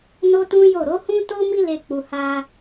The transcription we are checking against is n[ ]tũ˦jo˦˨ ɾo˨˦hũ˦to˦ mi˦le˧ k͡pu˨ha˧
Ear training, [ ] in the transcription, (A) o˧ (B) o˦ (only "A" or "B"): B